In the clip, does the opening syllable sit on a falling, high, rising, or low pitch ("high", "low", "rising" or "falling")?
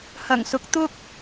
low